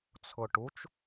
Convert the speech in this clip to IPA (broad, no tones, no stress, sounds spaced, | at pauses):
t͡sʰ ʊ ʈ u t͡ʃ